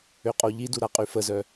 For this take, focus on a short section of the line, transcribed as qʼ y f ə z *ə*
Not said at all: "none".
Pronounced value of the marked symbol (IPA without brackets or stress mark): œ